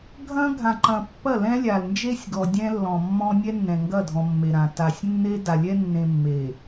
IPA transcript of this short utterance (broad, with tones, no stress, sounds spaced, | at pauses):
ɡʱ ɐ̃˦ ɡʱ ã˨ ǃ ɐ̃˨ pː ɐ˦˨ l ɛ̃˦ lʲ a˨ l n d͡ʒ e˦ sʲ ɡ ɔ˨ dʲ ɛ̃˦ lː ɔ̃˨ mː ɔ̃˦ nʲ ɛ˦ nː ɛ̃˨ ŋ ɡ ɐ˦˨ dʱ ɔ̃˨ mː e˨ ɾ ã˨ t a˨ sʲ nː e˦ d a˨ lʲ ɛ˦ nː ẽ˨ mː e˨